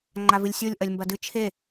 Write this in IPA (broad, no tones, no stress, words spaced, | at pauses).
ŋ͡ǃavɨlʲsʲolʲ ʔɐlʲmbɐdɨ t͡ʃʰe